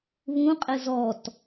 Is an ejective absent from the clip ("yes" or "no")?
no